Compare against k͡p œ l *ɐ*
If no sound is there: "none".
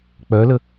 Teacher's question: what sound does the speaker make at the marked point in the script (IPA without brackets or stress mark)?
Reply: ə